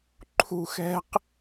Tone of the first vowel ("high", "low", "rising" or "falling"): high